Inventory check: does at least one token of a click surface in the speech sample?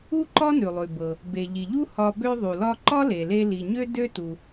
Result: yes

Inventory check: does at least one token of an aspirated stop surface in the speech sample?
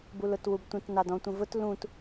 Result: no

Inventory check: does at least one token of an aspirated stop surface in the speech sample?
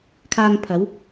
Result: yes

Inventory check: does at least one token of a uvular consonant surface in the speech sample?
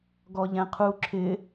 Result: yes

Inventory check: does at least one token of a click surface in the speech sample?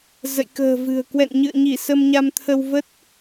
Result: no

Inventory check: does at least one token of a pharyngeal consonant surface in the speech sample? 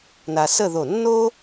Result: no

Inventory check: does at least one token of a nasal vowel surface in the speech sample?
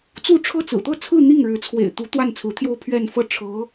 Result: no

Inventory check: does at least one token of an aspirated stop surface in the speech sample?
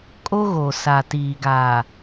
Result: no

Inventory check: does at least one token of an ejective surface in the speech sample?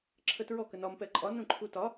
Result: yes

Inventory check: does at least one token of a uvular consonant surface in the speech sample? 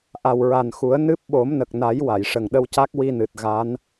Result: no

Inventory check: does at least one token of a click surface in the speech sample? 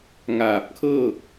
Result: no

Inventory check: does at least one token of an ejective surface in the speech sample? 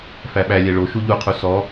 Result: no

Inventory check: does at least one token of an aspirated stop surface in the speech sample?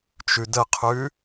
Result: yes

